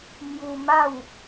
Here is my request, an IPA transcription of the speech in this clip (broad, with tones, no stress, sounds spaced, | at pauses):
m j u˧ m a˥˧ w